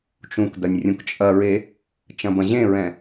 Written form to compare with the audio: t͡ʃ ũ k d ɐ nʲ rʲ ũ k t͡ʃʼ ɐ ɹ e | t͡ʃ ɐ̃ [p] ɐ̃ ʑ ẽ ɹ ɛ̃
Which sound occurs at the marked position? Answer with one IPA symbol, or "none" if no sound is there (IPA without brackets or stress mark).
b